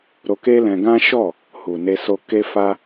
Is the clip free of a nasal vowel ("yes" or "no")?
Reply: no